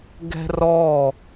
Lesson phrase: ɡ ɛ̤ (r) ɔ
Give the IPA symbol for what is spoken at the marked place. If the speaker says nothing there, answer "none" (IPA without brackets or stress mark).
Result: r